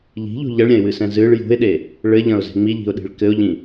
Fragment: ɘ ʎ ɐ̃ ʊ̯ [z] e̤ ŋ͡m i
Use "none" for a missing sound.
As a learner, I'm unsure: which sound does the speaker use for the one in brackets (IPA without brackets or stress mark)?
z